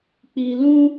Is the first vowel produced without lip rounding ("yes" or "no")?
yes